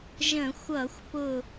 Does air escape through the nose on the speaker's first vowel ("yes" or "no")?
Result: yes